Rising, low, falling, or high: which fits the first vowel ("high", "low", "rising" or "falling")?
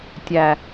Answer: low